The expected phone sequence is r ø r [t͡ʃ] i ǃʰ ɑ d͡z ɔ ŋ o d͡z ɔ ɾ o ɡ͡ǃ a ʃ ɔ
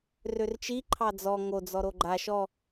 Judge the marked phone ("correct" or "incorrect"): correct